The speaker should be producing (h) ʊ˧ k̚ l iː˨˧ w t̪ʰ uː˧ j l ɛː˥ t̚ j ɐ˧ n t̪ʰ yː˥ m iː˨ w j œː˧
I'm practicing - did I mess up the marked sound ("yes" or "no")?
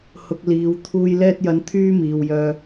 no